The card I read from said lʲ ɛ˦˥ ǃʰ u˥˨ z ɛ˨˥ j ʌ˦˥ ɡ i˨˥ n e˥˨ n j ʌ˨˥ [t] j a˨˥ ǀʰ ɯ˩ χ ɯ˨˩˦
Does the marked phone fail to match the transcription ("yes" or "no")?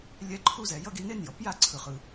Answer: yes